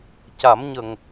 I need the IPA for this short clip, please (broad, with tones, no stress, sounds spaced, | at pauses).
c a˨˩˦ m ɲ ə˨˩ ŋ